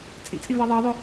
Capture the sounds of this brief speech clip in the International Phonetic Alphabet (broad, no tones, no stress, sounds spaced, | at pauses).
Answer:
t͡sʼ ḭ t͡sʼ i v ɜ ðˤ ɑ ðˤ ʊ